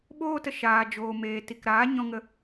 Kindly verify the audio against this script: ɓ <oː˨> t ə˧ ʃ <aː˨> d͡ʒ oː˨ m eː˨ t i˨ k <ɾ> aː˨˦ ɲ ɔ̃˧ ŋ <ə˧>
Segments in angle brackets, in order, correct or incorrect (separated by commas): incorrect, correct, correct, correct